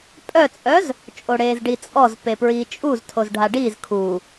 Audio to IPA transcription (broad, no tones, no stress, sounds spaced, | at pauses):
pʼ œ t͡sʼ œ z | t͡ʃʼ o ɽ eː z ɖ i t͡sʼ ɔ z p e p ɹ iː t͡ʃʼ u z tʰ o z ɖʱ a ɖ iː z kʰ u